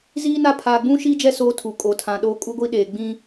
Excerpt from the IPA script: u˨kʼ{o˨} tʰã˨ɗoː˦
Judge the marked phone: correct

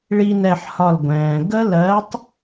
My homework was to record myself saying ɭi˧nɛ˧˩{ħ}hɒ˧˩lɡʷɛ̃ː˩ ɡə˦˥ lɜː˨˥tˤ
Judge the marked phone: correct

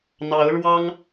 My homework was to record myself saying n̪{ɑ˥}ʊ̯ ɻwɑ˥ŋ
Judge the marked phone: incorrect: ɑ˧˥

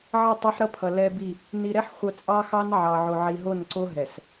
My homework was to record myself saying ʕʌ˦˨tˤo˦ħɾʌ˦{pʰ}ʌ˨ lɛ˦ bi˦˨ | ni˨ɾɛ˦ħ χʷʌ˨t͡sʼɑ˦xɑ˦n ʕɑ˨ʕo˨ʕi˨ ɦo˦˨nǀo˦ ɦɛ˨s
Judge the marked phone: correct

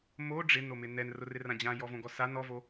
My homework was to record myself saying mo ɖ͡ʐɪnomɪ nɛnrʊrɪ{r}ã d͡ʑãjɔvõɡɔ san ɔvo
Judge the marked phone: correct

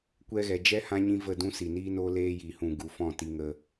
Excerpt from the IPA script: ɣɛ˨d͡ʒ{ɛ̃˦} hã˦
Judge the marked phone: incorrect: ɛ˦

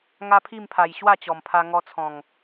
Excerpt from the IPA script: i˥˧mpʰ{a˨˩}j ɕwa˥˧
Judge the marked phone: correct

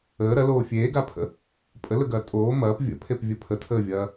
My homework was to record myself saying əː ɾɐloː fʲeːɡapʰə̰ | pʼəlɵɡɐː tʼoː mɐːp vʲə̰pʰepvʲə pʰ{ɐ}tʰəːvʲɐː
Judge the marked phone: incorrect: ə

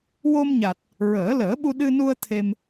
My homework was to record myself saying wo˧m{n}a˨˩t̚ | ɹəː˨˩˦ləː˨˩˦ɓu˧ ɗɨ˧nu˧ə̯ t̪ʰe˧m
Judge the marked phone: incorrect: ɲ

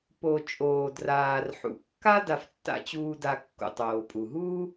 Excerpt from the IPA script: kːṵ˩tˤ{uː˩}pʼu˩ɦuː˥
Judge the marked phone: incorrect: oː˩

